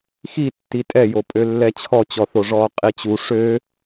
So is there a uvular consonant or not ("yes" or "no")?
yes